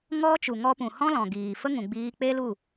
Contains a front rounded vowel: no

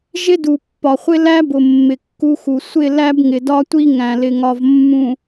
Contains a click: no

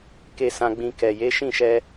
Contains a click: no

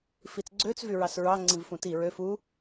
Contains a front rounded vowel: yes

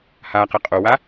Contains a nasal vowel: no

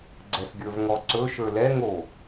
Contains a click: yes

